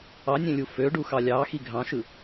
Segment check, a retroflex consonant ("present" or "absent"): present